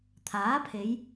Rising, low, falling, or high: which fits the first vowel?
rising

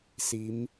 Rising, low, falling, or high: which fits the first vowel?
rising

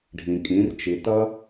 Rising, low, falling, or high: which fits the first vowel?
low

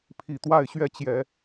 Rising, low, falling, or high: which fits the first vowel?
low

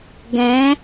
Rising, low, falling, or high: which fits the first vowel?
rising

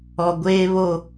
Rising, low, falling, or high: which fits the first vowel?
low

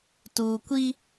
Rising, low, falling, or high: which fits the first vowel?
low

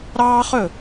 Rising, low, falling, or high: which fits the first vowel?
high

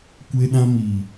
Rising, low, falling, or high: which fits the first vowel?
high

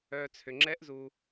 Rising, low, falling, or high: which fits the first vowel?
low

